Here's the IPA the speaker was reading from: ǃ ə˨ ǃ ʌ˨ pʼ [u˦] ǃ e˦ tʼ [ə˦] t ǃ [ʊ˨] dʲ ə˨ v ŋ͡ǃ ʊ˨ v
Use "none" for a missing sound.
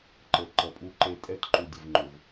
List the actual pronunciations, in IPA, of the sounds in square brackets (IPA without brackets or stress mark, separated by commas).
u˦, ɛ˦, u˨